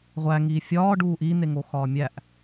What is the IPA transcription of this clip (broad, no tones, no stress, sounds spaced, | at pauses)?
ʁʷ æ ŋ iː fʲ ɒː ɖ uː ʔ iː n̪ e ŋ o x ɒː mʲ æ ʔ